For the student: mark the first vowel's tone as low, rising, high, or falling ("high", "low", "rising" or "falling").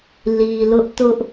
low